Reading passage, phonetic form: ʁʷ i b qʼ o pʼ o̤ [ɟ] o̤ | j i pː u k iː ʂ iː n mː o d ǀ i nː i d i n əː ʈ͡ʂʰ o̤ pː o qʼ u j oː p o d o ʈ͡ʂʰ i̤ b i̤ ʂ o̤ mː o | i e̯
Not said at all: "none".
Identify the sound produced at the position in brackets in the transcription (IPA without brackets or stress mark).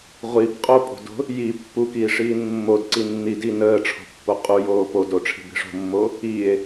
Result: d